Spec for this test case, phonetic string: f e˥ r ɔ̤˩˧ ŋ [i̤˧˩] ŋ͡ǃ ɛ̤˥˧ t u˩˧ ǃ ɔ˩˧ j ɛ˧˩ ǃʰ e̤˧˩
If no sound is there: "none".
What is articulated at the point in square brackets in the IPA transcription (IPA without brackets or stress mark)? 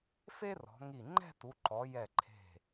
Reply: i˧˩